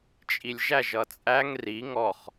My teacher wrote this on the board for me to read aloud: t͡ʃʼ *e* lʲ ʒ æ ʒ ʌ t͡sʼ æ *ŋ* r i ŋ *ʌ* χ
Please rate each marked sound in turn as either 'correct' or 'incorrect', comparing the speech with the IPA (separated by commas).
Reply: incorrect, correct, incorrect